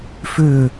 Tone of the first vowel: falling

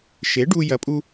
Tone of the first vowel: rising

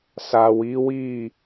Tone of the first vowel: low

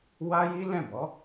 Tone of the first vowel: high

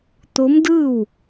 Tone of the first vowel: rising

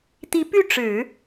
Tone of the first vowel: rising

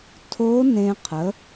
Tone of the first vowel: rising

